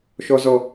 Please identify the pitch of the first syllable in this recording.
high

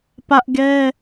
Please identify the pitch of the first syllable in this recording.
high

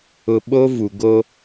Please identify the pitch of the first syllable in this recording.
high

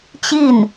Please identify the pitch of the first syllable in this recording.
falling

